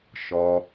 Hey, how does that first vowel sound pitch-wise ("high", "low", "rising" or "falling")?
low